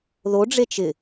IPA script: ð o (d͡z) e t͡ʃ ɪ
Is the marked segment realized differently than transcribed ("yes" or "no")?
yes